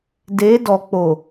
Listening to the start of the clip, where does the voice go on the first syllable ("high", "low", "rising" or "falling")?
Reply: rising